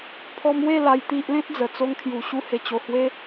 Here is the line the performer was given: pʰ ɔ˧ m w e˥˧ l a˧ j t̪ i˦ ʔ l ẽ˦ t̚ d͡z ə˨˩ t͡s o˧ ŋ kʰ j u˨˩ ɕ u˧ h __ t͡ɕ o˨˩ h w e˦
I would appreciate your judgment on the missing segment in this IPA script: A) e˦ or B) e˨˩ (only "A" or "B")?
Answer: B